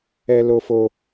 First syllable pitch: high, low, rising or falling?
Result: high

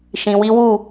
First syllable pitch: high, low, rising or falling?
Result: low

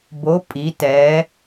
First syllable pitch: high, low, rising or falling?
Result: rising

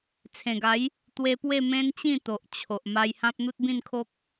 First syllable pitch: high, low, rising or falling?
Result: low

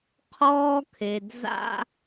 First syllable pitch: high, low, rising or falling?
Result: high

